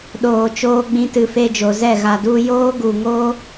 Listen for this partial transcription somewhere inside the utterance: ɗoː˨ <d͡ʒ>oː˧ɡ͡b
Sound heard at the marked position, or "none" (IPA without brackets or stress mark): t͡ʃ